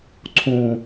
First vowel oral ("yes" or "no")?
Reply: no